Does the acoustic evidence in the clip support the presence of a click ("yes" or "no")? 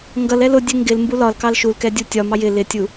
no